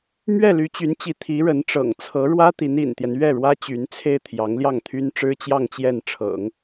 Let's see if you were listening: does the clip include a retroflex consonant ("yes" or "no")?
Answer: yes